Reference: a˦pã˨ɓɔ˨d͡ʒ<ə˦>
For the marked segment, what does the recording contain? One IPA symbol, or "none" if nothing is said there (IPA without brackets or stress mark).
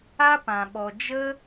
ə˦